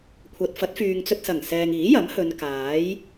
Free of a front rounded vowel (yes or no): no